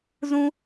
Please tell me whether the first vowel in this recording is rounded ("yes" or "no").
yes